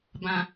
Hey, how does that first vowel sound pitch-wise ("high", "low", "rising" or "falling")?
low